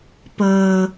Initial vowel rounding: unrounded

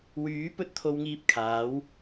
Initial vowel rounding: rounded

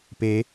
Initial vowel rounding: unrounded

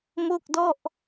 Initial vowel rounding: rounded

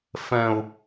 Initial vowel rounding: unrounded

